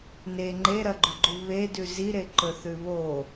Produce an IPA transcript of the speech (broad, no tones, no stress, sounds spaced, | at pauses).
n e ŋ͡ǃ e ɾ ɐ ɡ͡ǃ u ɡ͡ǃ u β e d ʉ z i ɾ e ǃ ɵ θ ʉ β o